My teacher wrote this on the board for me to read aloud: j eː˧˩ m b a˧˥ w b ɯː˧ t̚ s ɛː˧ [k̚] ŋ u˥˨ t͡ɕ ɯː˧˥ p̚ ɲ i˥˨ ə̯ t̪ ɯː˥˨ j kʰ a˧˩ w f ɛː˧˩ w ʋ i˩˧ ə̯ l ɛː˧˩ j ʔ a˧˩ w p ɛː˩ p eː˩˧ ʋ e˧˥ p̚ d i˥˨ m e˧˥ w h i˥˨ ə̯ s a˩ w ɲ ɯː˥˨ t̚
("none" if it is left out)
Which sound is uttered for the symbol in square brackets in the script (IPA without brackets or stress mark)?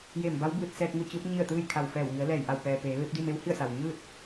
k̚